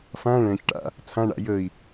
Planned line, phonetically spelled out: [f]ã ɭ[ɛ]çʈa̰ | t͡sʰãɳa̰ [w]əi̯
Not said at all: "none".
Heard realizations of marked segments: f, ɛ̃, j

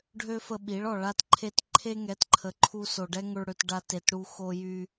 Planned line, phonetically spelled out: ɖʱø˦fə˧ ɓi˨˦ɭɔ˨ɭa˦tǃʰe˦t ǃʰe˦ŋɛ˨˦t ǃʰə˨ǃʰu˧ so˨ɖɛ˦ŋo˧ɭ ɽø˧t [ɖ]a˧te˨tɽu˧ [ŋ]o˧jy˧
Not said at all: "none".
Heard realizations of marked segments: ɖ, x

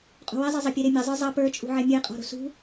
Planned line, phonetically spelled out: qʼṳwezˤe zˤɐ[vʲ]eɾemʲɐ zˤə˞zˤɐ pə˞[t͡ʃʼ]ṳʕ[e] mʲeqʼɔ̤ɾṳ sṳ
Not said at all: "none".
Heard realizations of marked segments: pʲ, t͡ʃʼ, e

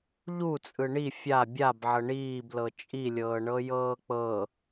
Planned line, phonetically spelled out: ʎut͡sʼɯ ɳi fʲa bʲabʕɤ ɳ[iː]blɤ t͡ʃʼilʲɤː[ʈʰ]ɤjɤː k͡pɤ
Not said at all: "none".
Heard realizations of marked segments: iː, ɳ

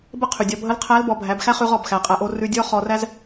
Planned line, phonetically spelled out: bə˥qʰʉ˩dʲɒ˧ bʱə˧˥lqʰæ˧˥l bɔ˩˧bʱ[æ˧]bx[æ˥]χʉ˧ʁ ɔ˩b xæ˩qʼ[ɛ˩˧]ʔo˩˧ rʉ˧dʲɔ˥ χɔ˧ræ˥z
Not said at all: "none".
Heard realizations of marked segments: æ˩˧, æ˥, æ˩˧

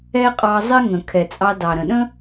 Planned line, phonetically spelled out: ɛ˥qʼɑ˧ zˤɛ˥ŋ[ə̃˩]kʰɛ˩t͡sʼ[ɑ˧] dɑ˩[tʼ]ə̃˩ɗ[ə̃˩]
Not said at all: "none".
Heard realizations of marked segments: ə̃˩, ɑ˧, ɾ, ə̃˥

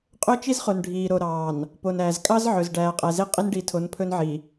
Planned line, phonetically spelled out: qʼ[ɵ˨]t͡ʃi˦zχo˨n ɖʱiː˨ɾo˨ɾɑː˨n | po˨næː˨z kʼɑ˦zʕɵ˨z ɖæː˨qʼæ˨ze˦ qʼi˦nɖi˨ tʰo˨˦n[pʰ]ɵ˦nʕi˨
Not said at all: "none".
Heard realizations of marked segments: ɵ˦, pʰ

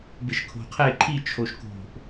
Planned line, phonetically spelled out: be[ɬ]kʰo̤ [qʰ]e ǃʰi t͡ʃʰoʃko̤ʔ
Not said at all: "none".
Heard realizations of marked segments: ʃ, qʰ

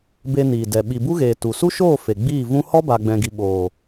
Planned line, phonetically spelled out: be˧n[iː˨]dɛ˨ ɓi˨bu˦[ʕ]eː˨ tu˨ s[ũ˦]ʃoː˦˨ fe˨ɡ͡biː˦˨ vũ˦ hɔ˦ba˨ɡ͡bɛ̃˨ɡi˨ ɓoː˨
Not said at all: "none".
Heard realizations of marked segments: iː˨, ɣ, u˦

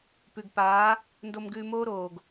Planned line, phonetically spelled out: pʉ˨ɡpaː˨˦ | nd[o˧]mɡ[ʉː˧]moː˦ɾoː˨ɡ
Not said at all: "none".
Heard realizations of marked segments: o˧, ʉː˧

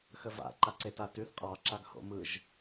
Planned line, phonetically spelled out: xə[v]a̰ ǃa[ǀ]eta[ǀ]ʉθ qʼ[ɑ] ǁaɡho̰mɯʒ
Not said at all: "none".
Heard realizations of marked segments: v, ǀ, t, ɑ

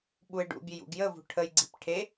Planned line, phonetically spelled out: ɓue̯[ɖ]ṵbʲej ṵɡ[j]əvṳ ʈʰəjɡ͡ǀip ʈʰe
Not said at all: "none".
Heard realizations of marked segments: ɖ, j

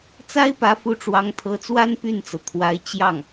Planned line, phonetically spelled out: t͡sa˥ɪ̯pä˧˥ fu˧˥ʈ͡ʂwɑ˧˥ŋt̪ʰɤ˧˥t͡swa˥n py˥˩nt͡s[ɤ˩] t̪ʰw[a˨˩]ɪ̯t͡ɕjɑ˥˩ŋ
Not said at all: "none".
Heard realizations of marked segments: ɤ˩, a˧˥

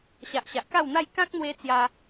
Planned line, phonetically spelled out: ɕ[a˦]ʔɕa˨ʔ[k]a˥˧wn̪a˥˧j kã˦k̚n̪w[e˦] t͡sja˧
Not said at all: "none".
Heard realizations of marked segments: a˨, k, e˧

